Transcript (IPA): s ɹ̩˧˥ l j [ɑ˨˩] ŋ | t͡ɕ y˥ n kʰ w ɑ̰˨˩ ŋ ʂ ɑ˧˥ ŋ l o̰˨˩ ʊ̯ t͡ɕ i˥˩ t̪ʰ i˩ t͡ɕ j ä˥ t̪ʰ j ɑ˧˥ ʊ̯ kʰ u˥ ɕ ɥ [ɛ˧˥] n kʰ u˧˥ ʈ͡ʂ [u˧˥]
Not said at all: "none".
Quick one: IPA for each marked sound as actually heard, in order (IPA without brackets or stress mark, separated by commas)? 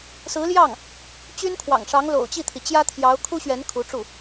ɑ˥˩, ɛ˧˥, u˥˩